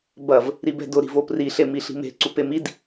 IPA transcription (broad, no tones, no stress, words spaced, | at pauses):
bɐv | ɾibɛ̤dʊ ɾi̤vopri ɬemiɬi̤me̤ ǀupemid